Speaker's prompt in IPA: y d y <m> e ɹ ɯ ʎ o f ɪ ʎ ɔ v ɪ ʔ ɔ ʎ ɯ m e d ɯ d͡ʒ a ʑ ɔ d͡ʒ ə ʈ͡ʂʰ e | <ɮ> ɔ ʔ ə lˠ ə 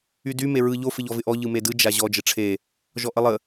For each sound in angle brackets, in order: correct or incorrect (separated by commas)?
correct, incorrect